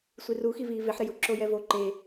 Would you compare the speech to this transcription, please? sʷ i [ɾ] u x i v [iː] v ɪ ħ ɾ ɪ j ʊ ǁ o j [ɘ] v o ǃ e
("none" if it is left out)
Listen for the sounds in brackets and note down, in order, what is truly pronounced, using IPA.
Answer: r, iː, ɛ

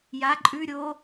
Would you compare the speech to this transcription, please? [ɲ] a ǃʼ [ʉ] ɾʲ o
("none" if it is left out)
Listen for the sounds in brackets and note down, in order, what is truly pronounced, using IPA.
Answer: j, ʉ

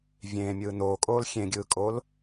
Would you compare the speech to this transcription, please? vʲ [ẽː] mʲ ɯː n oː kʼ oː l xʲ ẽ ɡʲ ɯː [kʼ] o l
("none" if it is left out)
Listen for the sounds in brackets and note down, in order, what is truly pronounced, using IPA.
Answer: ẽː, kʼ

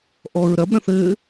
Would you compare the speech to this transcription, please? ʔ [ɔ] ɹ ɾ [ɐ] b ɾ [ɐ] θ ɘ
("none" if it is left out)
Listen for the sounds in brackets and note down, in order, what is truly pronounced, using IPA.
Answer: ɔ, ɐ, ɐ̃

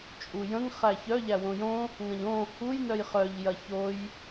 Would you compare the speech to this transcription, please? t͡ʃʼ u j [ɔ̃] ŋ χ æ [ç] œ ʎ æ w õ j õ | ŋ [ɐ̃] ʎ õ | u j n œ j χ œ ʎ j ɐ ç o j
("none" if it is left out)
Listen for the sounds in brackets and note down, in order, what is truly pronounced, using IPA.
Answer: ə̃, ç, ɐ̃

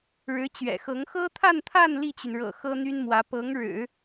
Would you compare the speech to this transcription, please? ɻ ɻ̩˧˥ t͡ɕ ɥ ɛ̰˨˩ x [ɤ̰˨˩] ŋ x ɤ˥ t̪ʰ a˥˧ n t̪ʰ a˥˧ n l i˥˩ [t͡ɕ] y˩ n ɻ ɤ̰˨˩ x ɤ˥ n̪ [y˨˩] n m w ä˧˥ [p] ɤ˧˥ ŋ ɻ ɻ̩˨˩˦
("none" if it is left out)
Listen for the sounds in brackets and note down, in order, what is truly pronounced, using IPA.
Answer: ɤ˧˥, t͡ɕ, y˥, p

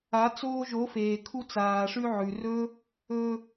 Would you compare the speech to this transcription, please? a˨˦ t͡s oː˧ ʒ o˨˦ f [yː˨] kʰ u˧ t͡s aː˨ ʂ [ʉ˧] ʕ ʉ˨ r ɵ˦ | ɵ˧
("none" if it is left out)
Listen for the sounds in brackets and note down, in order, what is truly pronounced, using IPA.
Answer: eː˨, ʉ˧

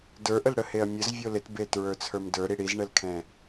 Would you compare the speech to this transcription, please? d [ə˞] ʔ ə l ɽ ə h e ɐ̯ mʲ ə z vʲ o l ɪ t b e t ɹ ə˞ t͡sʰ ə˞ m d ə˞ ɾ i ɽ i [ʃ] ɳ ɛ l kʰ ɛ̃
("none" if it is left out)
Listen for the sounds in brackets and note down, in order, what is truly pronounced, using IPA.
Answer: ə˞, z

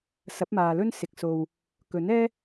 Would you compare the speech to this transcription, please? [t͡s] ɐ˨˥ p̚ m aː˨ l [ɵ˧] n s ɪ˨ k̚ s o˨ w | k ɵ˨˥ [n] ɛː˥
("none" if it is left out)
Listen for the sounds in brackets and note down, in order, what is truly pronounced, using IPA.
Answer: s, ɵ˥, n

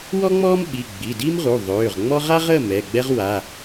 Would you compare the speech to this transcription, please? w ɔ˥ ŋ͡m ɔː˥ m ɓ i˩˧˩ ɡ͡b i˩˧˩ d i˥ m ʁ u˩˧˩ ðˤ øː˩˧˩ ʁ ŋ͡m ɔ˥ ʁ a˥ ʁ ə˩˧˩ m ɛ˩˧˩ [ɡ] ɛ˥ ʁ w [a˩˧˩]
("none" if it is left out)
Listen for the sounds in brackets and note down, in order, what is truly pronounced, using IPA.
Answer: ɡ͡b, a˩˧˩

